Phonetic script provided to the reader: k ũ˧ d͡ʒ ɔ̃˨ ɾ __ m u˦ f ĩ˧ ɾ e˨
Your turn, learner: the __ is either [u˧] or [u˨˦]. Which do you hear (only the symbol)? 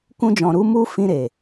u˨˦